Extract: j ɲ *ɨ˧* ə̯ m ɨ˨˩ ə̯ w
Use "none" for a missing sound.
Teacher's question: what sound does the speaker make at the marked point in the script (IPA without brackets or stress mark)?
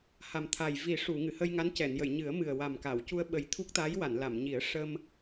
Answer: ɨ˨˩˦